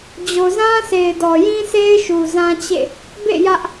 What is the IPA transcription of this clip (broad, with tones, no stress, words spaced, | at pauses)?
d͡ʑo˨zã˦se˨ɪ̯ dɔ˨jĩ˦sʰe˦ɪ̯ ʃu˨zã˦t͡ɕḛ˦˨ | bḛ˦˨ jä˦ʔ